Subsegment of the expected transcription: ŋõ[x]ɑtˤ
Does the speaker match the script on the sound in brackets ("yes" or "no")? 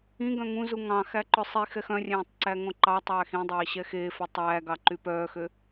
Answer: no